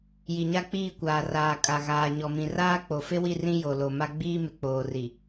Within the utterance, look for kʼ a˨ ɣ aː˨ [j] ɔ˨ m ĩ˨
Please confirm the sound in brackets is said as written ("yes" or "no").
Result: no